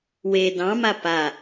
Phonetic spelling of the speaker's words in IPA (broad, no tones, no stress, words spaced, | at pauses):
we dɑ̃ma pa